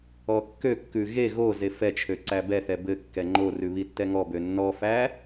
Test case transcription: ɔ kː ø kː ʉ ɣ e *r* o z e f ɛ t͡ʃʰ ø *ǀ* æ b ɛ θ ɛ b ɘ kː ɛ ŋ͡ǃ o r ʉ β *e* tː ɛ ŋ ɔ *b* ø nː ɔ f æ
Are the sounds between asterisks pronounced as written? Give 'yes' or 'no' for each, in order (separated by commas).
no, yes, no, yes